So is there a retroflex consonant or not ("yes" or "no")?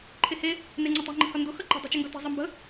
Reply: no